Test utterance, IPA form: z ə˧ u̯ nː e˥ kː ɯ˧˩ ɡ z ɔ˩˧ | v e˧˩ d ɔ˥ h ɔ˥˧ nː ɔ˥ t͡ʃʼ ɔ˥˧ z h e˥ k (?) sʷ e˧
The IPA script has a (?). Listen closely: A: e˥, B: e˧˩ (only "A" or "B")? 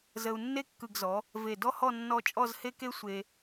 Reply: A